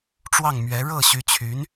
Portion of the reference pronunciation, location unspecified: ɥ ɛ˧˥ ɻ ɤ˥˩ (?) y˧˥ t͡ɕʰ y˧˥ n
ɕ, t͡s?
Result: ɕ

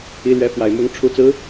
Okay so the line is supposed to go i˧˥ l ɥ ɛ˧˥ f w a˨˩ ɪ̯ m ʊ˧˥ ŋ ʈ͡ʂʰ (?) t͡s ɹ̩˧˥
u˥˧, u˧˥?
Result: u˧˥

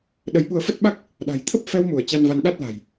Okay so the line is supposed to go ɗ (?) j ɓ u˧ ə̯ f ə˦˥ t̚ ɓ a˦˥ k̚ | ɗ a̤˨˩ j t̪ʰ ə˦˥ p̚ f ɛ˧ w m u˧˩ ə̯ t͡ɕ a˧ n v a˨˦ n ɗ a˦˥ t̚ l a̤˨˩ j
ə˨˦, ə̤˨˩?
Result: ə˨˦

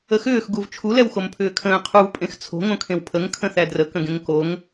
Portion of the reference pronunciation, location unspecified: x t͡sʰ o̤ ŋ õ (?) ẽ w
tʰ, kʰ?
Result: kʰ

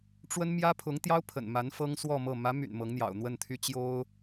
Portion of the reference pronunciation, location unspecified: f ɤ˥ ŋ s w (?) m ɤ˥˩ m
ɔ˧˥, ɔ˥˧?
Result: ɔ˥˧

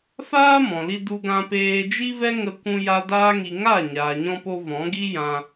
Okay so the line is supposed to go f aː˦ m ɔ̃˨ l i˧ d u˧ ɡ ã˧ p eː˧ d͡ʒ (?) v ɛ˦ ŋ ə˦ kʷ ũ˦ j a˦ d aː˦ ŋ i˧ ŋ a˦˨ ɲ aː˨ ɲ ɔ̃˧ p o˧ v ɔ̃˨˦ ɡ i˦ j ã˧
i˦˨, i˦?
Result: i˦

